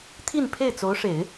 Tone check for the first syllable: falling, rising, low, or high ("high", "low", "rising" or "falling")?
falling